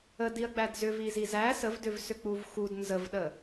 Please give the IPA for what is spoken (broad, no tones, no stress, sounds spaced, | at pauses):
ə d i ɐ̯ ɡ͡b æ d z ʏ v i z i z æ s ə v d ʏ v s ʏ k͡p u v x u d n z ə v ɗ ə